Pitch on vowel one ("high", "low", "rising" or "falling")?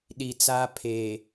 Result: low